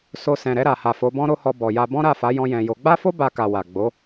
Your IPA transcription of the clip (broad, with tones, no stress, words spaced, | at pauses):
so˧ sɛ̃˨ɾɛ˧ɾa˨ha˨ fo˨˦bɔ̃˦ɾo˦hɔ˧ bɔ˨ja˧ bɔ̃˦ɾa˦˨fa˨˦ jɔ̃˧jɛ̃˨jo˨˦ ɡ͡ba˦fo˦ ba˧ka˨ wa˨ ɡ͡bo˨˦